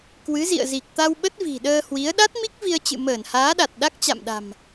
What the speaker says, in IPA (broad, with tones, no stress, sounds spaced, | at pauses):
k w ɨ˨˦ z ḭ˧˨ ə̯ z i˨˩ k̚ t̪ a˧ w ɓ ə˦˥ t̚ v i̤˨˩ ɗ əː˧ h w i˨˦ ə̯ ɗ a˦˥ t̚ m i˦˥ k̚ v i˧ ə̯ t͡ɕ ɨ̰˧˨ m əː˧˩ n h aː˨˦ ɗ a˨˩ t̚ ɗ a˦˥ k̚ t͡ɕ a̰˧˨ m ɗ a̤˨˩ m